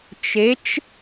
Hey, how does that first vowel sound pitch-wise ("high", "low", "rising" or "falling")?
rising